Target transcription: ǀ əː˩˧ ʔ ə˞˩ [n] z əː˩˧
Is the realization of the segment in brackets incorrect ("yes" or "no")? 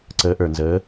no